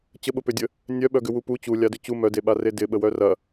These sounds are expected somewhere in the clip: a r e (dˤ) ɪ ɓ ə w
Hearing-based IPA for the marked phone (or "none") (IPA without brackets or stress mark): d